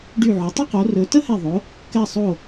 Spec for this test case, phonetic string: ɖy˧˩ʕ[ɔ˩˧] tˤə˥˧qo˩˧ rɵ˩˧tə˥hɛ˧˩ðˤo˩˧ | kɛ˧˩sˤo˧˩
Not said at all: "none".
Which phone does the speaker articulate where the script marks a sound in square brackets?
ɵ˩˧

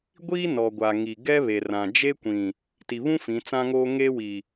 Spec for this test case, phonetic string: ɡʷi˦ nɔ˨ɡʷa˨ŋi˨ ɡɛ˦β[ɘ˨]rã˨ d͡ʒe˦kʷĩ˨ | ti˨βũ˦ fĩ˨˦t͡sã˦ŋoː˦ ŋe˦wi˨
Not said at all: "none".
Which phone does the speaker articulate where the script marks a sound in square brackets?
e˨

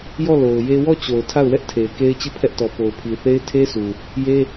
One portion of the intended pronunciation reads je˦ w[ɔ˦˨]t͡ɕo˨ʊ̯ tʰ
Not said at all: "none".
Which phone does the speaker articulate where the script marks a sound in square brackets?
ɔ˦˨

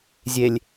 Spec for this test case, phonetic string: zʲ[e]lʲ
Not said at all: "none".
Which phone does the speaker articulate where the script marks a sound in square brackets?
e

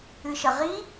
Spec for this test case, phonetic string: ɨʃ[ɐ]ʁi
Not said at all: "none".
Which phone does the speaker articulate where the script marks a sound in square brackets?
ɐ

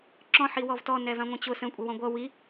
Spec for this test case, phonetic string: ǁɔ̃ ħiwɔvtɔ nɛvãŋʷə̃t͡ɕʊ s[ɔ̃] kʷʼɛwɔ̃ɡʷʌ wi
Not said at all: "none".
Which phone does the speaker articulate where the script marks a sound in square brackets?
ə̃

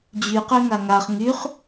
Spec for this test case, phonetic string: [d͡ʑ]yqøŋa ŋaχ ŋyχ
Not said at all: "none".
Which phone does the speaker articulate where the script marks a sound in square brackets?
d͡ʑ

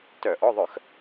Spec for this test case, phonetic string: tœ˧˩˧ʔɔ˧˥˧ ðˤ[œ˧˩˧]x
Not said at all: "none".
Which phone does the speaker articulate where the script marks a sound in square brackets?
œ˧˩˧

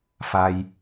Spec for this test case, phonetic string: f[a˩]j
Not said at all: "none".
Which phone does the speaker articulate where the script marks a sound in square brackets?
a˩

